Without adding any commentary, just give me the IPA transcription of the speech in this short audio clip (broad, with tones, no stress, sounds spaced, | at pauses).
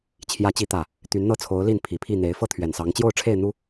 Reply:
t͡ɕʰ j ä˨˦ t͡ɕ i˨˦ t̪ ä˨˩ | t̪ y˨˦ n n̪ ɤ˥˨ t͡sʰ o˨˦ ʊ̯ l i˥˨ n pʰ i˨˩ pʰ i˥˨ n̪ e˨˦ ɪ̯ f ɤ˥˨ t̪ʰ ɥ ɛ˨˩ n s ɑ˨˦ ŋ t͡ɕ j o˥˨ ʊ̯ ʈ͡ʂʰ e˥˨ ɪ̯ n̪ u˦